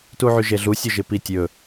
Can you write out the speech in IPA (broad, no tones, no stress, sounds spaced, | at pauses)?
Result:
t u ʕ y ʒ e ɮ u sʲ ɵ ʒ ɪ p i tʲ ɵ